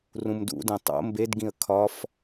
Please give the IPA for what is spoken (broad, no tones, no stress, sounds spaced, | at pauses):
r ũ m d ṵ d ẽ tˤ o̰ m b e d ɡ ĩ ə̯ kʰ ɒ f